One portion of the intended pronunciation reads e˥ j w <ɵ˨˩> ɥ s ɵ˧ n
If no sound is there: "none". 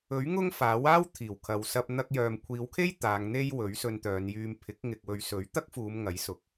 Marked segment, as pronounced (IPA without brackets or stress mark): ɵ˨˥